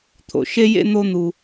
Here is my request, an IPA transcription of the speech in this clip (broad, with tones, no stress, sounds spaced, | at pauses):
t̪ʰ o̰˩ ʃ e˥ j ḛ˥ n̪ o˥ n̪ u˧